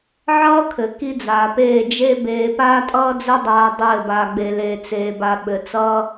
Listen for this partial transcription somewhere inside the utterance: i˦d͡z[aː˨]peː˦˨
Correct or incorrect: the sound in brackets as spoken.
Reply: correct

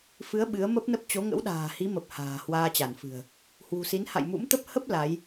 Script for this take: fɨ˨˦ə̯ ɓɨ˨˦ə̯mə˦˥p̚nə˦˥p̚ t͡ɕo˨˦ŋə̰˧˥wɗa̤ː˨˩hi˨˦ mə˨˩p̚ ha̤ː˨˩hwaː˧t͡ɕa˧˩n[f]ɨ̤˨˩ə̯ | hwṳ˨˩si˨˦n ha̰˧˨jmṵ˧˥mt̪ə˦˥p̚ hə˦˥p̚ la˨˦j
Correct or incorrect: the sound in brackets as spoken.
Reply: correct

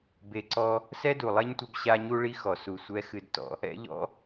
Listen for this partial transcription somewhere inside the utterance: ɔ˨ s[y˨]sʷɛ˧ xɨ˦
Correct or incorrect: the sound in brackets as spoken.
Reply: incorrect: u˨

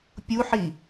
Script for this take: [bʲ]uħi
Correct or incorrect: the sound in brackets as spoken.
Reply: incorrect: pʲ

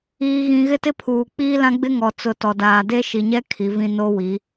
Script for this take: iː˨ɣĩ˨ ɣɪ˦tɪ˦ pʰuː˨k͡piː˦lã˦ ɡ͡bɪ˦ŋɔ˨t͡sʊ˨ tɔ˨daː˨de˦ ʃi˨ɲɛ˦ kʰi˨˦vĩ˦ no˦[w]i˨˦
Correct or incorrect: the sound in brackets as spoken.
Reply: correct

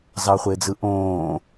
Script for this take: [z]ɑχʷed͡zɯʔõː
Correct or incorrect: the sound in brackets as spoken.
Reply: correct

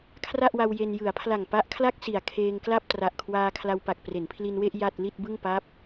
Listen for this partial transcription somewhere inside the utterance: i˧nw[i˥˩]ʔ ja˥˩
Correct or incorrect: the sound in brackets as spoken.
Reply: incorrect: e˥˩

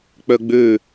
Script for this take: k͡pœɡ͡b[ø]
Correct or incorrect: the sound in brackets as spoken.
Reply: correct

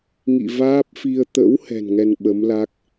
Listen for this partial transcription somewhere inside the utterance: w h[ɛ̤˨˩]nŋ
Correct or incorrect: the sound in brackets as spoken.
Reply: correct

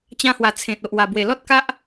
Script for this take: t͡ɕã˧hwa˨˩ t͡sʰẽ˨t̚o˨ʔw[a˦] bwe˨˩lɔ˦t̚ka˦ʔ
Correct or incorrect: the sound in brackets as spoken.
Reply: incorrect: a˨˩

